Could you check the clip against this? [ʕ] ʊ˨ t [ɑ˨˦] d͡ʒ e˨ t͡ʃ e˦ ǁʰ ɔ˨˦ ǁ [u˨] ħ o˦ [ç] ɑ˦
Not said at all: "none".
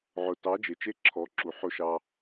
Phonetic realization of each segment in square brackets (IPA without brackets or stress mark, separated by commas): ʕ, ɑ˨˦, u˨, ʃ